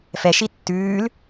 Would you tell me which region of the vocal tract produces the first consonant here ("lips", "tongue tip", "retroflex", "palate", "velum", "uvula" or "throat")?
lips